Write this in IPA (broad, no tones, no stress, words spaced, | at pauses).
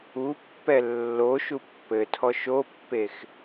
upːɛ lːo ʃupːɘtʰɔ ʃopːex